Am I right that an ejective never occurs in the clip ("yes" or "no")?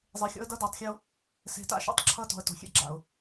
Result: yes